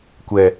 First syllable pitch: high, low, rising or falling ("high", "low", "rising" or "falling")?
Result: low